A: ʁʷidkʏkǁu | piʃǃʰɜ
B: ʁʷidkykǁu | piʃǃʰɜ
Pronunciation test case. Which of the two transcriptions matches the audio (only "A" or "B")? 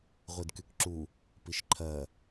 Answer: B